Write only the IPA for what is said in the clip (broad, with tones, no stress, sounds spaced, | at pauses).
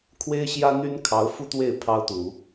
kʰ w e˥ ɪ̯ ɕ j ä˥ n̪ y˥ n kʰ ɑ˧˥ ʊ̯ f u˥ t̪ w e˥˩ ɪ̯ pʰ ɑ˥ ʊ̯ t̪ u˨˩˦